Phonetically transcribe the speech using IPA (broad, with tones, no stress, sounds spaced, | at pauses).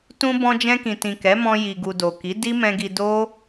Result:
t ũ˧ b ɔ̃˧ d͡ʒ ɛ̃˧ k ĩ˨ t ĩ˨ k ɛ˨˦ m ɔ̃˧ j i˨ ɡ u˨ d o˨ k i˨˦ d i˦ m ɛ̃˧ ɡ i˧ d o˦